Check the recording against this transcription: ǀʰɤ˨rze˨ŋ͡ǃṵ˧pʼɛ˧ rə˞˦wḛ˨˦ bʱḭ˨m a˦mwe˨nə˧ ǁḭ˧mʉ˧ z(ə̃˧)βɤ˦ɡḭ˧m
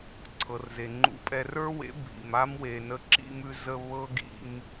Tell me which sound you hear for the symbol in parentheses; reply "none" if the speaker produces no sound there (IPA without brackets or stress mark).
ə˧